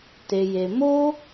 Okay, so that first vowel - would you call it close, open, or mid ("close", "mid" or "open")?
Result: mid